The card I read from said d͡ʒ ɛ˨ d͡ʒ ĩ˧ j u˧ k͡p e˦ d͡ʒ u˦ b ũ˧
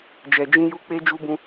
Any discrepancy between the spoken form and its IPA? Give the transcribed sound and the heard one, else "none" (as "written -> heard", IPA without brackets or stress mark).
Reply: none